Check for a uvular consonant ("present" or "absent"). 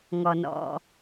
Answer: absent